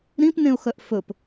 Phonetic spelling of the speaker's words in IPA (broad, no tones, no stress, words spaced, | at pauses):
ɾĩpnẽʊ̯xœʔ fɵp